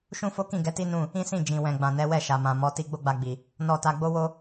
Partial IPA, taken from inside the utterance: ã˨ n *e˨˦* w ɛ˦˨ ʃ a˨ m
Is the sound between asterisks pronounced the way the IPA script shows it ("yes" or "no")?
no